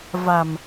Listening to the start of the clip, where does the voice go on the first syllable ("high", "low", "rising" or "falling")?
low